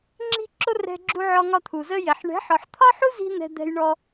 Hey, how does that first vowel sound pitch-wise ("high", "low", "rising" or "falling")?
high